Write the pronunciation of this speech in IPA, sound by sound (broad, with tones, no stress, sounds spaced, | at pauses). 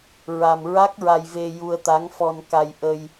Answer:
ɹ a˧ m ɹ a˦˥ k̚ ɹ a˧ j v e˧ j u˧ ə̯ t̪ a˧˥ ŋ f ɔ˧ n k a˧ j ʔ ə˧ j